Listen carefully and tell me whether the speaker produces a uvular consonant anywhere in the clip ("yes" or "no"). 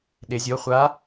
yes